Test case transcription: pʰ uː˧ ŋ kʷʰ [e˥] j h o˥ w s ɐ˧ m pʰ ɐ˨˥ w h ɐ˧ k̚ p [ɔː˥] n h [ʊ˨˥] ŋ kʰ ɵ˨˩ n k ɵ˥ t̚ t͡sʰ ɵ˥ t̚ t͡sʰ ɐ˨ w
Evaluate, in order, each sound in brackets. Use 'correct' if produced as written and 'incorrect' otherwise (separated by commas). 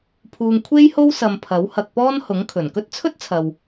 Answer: correct, correct, correct